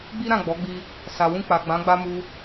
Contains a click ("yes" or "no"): no